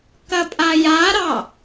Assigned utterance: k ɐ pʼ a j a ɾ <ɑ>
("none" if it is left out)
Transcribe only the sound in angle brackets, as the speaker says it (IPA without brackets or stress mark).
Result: ɑ